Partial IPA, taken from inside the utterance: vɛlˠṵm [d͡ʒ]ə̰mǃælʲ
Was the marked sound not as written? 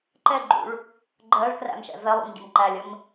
yes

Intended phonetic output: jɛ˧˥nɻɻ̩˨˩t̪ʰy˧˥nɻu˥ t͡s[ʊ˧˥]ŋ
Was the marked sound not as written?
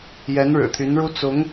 no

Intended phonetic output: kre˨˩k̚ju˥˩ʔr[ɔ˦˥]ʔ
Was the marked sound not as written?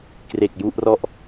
yes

